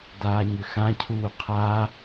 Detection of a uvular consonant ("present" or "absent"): present